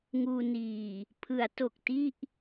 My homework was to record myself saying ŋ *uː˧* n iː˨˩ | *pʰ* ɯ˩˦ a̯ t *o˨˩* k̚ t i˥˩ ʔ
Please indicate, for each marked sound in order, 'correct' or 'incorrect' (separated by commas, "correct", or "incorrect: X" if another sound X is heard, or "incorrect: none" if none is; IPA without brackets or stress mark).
correct, correct, correct